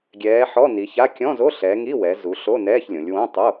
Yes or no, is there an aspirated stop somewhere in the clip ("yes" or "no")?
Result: no